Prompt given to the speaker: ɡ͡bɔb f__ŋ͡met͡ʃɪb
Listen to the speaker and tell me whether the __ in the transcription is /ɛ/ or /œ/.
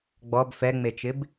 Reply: ɛ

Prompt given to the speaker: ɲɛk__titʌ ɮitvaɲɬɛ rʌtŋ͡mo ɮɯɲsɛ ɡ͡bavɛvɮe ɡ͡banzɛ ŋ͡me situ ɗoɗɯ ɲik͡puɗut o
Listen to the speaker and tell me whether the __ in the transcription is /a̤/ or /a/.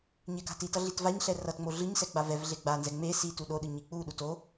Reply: a̤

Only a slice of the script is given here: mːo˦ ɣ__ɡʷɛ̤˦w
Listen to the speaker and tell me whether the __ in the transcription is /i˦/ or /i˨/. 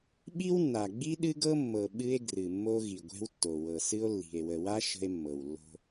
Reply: i˨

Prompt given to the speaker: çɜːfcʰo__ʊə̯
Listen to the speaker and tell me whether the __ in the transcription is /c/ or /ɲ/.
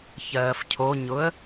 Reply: ɲ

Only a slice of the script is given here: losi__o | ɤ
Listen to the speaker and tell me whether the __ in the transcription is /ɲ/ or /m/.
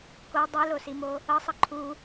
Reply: m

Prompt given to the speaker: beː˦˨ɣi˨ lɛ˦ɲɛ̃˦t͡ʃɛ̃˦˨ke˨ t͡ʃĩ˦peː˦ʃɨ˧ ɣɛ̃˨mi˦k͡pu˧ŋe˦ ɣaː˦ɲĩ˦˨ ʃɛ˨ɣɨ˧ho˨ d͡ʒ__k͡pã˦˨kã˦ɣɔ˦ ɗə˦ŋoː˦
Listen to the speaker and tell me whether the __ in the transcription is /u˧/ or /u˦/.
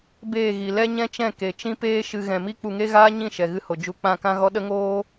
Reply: u˧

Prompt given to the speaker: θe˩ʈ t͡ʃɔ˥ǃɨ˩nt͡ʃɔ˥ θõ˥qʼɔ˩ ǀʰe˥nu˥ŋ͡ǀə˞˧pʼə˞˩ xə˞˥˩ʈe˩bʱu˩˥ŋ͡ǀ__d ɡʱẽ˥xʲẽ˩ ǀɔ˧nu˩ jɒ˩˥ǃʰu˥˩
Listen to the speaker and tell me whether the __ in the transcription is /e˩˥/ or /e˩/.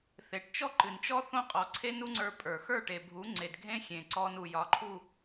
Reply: e˩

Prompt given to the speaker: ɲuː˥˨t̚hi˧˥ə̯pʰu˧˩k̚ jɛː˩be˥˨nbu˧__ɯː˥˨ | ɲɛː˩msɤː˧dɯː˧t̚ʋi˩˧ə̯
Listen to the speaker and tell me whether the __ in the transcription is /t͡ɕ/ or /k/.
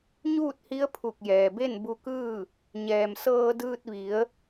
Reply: k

